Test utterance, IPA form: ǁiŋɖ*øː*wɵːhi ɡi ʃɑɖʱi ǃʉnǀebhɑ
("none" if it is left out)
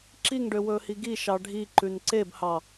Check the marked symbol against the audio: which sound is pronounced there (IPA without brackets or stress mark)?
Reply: ø